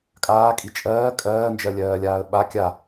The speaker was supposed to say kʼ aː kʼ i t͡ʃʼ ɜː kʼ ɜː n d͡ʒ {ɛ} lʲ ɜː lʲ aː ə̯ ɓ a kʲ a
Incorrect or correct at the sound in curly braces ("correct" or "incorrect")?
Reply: incorrect